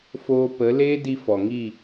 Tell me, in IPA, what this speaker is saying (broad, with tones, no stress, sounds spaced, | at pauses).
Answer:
f oː˧ p ə˨˦ l eː˦ d i˧ f ɔ˨ ŋ i˦˨